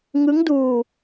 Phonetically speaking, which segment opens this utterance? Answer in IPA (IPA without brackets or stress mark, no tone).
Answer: ŋ